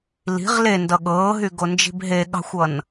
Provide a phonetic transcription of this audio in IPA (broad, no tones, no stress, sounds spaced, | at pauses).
l i̤ ʁ l e n d ʌ ɠ ɤː ɦ y ɡ o n d͡ʒ i̤ b ɦ e ɠ ɑ̤ xʷ ʌ n